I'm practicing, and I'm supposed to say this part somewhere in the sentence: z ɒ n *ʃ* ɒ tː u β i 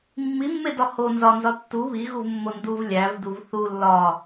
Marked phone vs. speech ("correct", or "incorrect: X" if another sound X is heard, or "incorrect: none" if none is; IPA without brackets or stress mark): incorrect: z